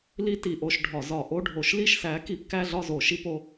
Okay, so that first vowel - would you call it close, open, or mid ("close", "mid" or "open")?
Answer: close